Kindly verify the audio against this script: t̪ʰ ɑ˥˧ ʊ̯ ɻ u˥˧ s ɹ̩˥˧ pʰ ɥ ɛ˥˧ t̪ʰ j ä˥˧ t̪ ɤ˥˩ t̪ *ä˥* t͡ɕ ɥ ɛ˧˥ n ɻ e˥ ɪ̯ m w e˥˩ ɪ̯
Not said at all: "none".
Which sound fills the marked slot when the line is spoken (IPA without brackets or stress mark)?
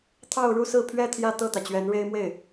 ä˩